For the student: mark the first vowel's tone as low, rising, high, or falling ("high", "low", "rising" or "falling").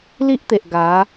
high